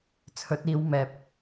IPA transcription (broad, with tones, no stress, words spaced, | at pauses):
t͡sʰɵ˨˥t̚iː˨˧w mɛː˨p̚